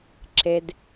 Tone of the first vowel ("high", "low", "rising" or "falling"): high